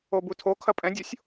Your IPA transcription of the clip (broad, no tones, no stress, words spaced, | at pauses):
obutʰokʰɐ pʼɛ̃dʲosʲ